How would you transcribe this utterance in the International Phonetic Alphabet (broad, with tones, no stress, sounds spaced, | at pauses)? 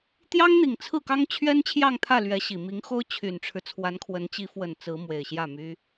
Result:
t̪ j ɑ˥ ŋ n̪ i˨˩ ŋ t͡sʰ ɹ̩˥˩ k ɑ˥ ŋ t͡ɕʰ ɥ ɛ˥ n t͡ɕʰ j ɑ˥˧ ŋ t̪ʰ ä˥˩ l ɥ ɛ˧˥ ɕ i˨˩ m i˧˥ ŋ x o˥ ʊ̯ t͡ɕʰ y˨˩ n ʈ͡ʂʰ ɻ̩˦ t͡sʰ w a˧˥ n kʰ w ə˧˥ n t͡ɕ i˧˥ f w ə˨˩ n t͡s ɹ̩˧˥ m w e˨˩ ɪ̯ ɕ j ä˥˩ m y˥